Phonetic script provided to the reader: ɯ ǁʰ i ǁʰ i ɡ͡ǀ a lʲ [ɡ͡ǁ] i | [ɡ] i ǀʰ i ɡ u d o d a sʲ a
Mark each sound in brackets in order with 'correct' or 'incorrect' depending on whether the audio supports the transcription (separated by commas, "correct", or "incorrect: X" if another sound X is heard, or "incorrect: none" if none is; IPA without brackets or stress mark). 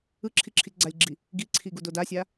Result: correct, correct